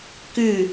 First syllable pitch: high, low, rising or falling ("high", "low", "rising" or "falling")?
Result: falling